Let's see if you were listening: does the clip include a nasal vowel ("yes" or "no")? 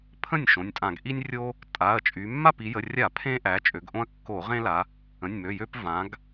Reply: yes